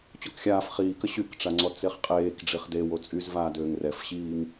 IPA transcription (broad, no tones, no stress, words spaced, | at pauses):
t͡ɕɔkxʲaːf χiːkə ɕykʈ͡ʂaŋ͡ǀɔ t͡seχqʼeːk ɖ͡ʐiχde wot͡sʼyzvaːdøːŋ rɛfɕiːŋ